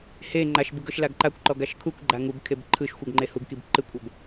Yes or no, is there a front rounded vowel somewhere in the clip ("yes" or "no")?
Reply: no